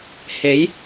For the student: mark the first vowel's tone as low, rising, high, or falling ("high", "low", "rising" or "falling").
rising